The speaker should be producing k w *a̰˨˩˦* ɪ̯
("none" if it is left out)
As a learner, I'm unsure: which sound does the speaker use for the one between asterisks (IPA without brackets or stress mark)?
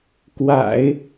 a̰˨˩˦